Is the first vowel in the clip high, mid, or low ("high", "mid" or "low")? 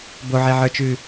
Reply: mid